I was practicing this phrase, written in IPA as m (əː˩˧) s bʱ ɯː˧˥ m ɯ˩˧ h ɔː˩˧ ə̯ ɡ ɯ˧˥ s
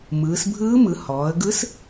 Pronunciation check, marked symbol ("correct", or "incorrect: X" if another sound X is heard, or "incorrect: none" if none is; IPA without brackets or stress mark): incorrect: ɯː˩˧